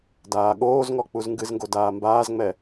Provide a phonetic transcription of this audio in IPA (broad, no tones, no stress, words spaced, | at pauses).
daːɠoːzŋɔ k͡puzŋɡɨzŋɡo daːmbaːzŋ͡mɛ